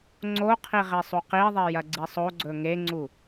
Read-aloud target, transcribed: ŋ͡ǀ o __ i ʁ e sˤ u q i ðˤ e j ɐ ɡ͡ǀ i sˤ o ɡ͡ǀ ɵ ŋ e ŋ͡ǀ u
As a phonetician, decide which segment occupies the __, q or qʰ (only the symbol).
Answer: qʰ